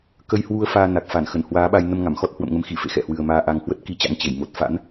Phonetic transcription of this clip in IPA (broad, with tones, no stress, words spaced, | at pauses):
kə˧jhwu˧ə̯ faː˧na˨˩k̚fa˧˩n xə˧˩nhwaː˨˦ɓa˧j nə˧mŋa˧˩mxɔ˦˥t̚ hwə̰˧˨mŋə˨˦mxi˧˩fḛ˧˨ xɛ̰˧˨hwɨ˨˩ə̯maː˧ ʔa˨˩ŋhwə˦˥t̚ki˨˦t͡ɕa̰˧˥ŋ t͡ɕe˧˩j mo˨˩t̚ fa̰˧˥n